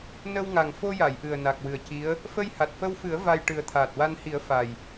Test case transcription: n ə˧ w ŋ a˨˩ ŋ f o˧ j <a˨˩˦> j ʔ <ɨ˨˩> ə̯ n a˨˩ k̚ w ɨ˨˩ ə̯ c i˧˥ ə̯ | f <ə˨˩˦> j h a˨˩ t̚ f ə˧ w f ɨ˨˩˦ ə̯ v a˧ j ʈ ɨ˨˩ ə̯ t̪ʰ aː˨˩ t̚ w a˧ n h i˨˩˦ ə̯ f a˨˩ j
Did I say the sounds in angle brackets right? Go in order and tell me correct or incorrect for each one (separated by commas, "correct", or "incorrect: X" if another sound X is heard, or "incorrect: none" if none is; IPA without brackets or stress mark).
incorrect: a˨˩˨, correct, incorrect: ə˧